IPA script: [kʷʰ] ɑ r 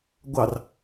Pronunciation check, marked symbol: incorrect: ɡʷ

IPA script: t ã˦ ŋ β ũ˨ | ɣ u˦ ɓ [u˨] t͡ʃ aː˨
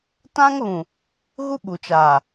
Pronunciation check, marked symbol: correct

